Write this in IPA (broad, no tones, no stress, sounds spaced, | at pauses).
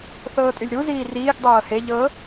θ ɤː tʼ y lʲ ɾ u z iː r iː ɡ dˤ ɤː h e ʎ ɤ